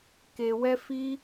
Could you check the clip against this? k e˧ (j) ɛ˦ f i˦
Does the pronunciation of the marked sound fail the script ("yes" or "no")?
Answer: yes